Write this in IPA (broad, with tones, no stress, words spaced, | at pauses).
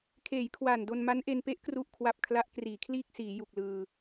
kʰeː˩˦jkʰwaː˨˩ndo˧n ma˦˥nʔe˧n pe˦˥ʔkru˨˩ʔkʰwa˨˩p̚ kʰla˦˥ʔkriː˩˦kʰliː˥˩k̚siː˩˦ ju˨˩k̚lɯː˧